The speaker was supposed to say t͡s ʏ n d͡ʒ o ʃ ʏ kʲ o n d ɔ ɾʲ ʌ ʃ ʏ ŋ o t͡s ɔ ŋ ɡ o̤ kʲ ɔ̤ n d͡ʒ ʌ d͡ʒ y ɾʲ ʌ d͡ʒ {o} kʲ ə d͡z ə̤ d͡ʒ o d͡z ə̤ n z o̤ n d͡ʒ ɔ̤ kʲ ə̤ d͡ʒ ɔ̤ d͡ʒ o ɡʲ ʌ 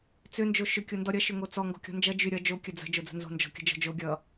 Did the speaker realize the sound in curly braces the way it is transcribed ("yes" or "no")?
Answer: yes